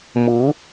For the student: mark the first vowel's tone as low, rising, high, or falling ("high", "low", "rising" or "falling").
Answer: rising